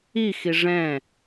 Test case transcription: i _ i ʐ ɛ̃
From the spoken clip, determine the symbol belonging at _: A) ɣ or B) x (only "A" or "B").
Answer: B